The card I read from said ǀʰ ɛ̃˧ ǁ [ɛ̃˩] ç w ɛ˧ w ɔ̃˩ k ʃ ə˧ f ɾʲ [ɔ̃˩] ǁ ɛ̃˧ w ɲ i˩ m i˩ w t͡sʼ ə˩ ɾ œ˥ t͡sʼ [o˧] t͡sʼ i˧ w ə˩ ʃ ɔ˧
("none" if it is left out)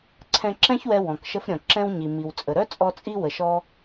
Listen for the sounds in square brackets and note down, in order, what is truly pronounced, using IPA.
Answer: ɛ̃˥, ɔ̃˩, ɔ˧

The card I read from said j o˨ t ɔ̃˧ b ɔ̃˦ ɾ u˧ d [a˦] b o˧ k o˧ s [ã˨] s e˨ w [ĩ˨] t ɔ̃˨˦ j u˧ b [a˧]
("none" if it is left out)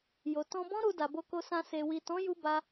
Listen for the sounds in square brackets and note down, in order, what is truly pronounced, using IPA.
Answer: a˨, ã˧, i˨, a˧

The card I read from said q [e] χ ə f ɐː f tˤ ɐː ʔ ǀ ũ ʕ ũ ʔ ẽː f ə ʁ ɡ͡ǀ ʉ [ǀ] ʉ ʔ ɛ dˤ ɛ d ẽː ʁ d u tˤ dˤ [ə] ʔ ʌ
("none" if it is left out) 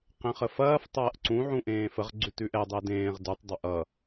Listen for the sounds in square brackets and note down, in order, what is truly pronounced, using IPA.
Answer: ẽ, t, ə

